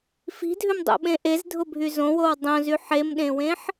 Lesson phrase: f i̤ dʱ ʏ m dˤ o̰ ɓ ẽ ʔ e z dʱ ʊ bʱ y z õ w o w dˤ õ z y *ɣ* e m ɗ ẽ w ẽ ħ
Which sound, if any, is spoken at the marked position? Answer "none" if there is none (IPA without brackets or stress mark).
ħ